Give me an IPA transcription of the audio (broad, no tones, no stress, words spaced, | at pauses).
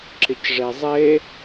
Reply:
ǁɪcʐezˤe